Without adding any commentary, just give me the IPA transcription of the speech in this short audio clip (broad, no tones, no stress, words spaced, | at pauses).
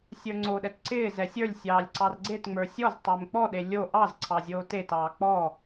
sʲə˞ŋ͡ǀoɗɛt ǀɪː zɛsʲə˞lʲsʲɑːlʲ ǀɑrɡ͡ǀetŋ͡mə˞ sʲɔz tˤɪːmk͡pɔɗe lʲo ʔɑz ǀʰɑzʲoːtetɑː k͡pɔ